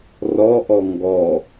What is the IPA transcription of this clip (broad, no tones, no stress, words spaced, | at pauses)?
rɔʔɔ ŋɡɔ